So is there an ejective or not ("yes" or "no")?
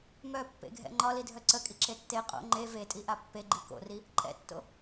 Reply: yes